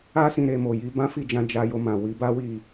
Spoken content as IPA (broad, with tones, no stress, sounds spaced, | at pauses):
a˦ s ĩ˦˨ ɾ e˧ m o˨ j i˨˦ b ã˦ f i˦˨ d͡ʒ ã˧ d͡ʒ a˧ j o˧ m ã˨ w i˨˦ b a˦ w i˦˨